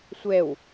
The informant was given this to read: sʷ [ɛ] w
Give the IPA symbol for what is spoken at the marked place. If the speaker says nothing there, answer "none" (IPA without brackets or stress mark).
ɛ